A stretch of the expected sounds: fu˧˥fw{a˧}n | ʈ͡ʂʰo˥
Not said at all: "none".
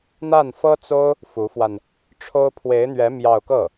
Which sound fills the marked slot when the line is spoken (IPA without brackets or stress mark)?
a˧